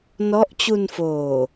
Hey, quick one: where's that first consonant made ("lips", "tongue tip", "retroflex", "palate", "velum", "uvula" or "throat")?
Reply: tongue tip